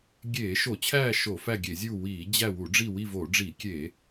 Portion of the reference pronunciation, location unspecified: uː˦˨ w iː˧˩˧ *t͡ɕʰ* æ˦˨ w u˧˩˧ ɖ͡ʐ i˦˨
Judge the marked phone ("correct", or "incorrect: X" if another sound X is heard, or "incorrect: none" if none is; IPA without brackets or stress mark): incorrect: d͡ʑ